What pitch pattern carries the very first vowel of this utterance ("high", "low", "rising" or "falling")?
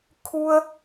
high